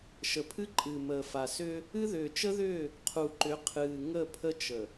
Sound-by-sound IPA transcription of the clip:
ʃ ə˨ pʰ ɨ˦ ǃʼ ɨ˨ m əː˨ f a˨ s ʏː˦ | ɨ˦ ð ʏː˨ t͡ʃ ə˦ ð ʏː˦˨ | qʰ u˨ ǃ ʏ˨˦ qʰ ɨː˨ ŋ ə˦˨ pʰ ə˦ t͡ʃ ə˨

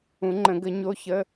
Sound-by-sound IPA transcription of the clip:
ũ˨˩˦ ŋ͡ǃ ə̃˨˩˦ ɡ ə˨˩˦ ɲ o˧˥˧ ç ə˧˥˧

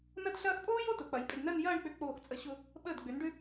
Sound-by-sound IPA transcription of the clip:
n ɐ˥ d ɬ ɐː˥ x pʼ oː˥ j o˥˧ t ʊ˩˧ k͡p ɐ˩˧ j pʼ ʏ˧ d n ɜ˥˧ n j ɐː˥˧ ɳ k͡p ʏ˧˩ k͡p oː˧˩ x t͡sʼ ə˧˩ ɕ ʊ˧ | ɓ əː˧˩ d ɡ͡b ʏ˩˧ n ɖ ʏ˧

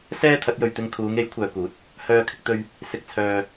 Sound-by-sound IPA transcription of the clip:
s ɛː˥ t̪ʰ ɐ˨˥ t̚ j ɵ˨ ɥ t̪ ɪ˧ ŋ kʰ uː˨˧ ŋ e˨˥ j kʷʰ œː˨ k uː˨˥ t̚ | h œː˨ kʰ ɪ˧ k̚ t̪ ɵ˧ ɥ | s ɪ˨ k̚ t͡sʰ œː˨

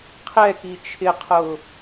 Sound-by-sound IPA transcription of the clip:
qʰ ɛ k i t͡ʃʰ ɪ qʰ ʊː

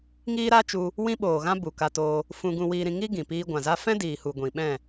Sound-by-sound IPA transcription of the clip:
ŋ iː˦ ɾ a˦ t͡ʃ u˧ | w ĩ˦ ɓ oː˨ ɣ ã˦ b u˨ k a˧ t oː˧ | f ũ˧ ɡ ũ˧ w iː˧ ɾ ĩ˧ ŋ i˦ ɡ ĩ˨ p iː˧ ɡʷ ã˨ z a˦ f ɛ̃˦ d iː˨ h u˨ ɡʷ ĩ˨ ɓ ɛ̃˦˨

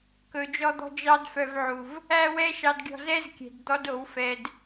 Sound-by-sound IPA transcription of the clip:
k ɵ˨ d͡ʒ ɔ˧ d̪ ɔ̤˧ d͡ʒ ɑ˧ d f œ˧ v ʕ u˨ v | æ˦ w ɛ˦ ʃ ɑ˧ d ɡʲ ɔ̤˧ z ɛ˦ z kʲ ɛ̤˨ d d̪ ɔ˦ d o˨˦ w f ɛ˧ d

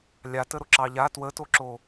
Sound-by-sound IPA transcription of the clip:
lʲ a t ə ɾ o ǁ ɑ ʎ a t w ə t o ǁ o

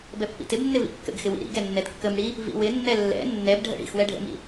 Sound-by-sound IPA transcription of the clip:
b ɛ pː ḭ t ɪ b nː ɪ v ḭ kː ə̰ ɡ x ɪ w ḭ ɾ ḭ ɡ ɛ nː ɛ d kː ə m ɽ i | v ḭ w ɪ nː ɛ lː ɛ̰ nː ɛ b ɖʱ ə̰ ɽ ḭ x w ɛ ɖʱ ə̰ m ḭ

